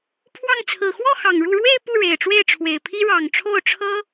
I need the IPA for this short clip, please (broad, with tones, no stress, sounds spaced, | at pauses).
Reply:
pʰ w ɑ˥˩ ŋ t͡sʰ ɹ̩˨˩ x w ɔ˥˩ x ɑ˨˩ ŋ ɻ u˥˧ ɻ w e˥˧ ɪ̯ p u˥˩ ɻ e˨˩ ɪ̯ ʈ͡ʂ w e˥˩ ɪ̯ ʈ͡ʂʰ w e˨˩ ɪ̯ pʰ i˥ ɻ ɑ˨˩ ŋ ʈ͡ʂʰ o˥˩ ʊ̯ ʈ͡ʂʰ ɤ˥